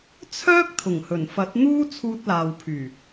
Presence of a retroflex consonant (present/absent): absent